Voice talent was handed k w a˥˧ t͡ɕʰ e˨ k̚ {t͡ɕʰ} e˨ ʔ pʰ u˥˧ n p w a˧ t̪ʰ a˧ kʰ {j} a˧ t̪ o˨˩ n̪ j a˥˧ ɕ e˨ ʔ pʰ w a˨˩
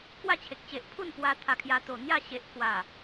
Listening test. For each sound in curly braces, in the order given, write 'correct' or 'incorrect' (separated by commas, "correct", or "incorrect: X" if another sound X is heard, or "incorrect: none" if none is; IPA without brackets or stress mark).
incorrect: t͡ɕ, correct